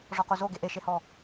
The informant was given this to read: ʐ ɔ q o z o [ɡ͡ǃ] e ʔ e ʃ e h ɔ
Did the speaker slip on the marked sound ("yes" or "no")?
yes